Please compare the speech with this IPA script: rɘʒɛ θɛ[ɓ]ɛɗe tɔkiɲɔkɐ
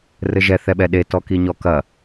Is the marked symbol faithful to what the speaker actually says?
yes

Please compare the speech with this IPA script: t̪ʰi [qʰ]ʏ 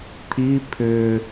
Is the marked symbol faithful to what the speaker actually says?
no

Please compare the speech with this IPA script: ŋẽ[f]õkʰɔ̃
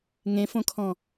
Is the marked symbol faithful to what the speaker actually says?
yes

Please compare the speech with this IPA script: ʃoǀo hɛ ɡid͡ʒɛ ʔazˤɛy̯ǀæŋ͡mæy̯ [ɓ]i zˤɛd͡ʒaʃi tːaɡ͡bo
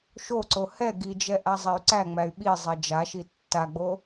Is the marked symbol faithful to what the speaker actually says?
yes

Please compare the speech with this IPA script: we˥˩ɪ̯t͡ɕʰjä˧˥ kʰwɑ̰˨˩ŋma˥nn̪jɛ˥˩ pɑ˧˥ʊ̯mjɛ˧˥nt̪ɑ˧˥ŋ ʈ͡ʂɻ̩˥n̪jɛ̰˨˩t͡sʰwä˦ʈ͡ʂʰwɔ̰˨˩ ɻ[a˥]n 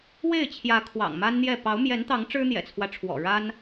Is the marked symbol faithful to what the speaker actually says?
yes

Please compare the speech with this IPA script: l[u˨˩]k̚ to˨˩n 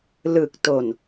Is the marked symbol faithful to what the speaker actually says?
no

